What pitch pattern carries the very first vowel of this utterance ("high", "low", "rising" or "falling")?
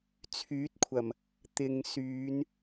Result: rising